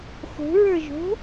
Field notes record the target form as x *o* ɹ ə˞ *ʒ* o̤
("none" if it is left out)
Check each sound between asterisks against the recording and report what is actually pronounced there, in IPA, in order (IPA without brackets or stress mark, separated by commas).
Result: o̤, ʒ